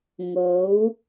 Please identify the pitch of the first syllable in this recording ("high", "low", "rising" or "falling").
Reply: rising